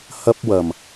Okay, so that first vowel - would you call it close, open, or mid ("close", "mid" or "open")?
open